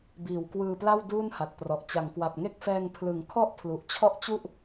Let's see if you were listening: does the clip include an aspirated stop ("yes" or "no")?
yes